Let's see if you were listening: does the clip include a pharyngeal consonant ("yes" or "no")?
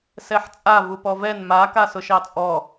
yes